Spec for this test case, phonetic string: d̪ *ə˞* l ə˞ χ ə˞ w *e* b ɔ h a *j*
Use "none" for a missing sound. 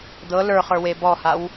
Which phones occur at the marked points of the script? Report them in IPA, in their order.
ɤ, e, w

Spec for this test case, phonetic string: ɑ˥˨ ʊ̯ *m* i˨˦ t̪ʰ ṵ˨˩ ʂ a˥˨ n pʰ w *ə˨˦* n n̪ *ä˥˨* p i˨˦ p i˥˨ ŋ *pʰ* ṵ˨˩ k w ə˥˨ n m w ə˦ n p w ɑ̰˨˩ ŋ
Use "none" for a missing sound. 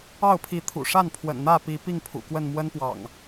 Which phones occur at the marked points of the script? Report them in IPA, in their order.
pʰ, ə̰˨˩, ä˥˨, pʰ

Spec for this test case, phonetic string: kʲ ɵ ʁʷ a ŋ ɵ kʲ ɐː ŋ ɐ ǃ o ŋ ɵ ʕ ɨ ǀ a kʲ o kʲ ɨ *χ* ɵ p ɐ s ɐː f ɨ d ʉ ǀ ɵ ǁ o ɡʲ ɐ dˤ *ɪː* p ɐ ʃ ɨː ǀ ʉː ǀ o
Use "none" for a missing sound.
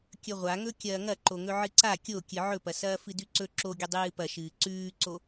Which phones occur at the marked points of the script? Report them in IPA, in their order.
ʕ, ɨː

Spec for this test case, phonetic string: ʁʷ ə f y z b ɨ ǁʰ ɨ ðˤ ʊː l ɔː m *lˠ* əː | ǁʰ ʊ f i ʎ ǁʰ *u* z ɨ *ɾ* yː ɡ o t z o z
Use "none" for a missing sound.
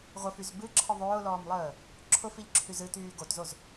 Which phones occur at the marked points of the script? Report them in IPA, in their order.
lˠ, y, t

